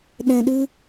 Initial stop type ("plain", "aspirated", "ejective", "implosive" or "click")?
implosive